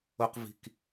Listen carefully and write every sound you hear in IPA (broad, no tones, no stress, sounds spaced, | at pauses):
o q v i̤ k